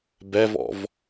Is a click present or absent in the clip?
absent